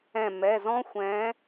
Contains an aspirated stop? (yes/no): no